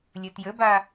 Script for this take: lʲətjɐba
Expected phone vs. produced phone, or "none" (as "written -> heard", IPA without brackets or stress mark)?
ɐ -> ə